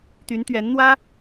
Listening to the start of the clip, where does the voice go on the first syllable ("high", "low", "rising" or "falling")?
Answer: rising